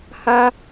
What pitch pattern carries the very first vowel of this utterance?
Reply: high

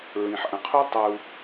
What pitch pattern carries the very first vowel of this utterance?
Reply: low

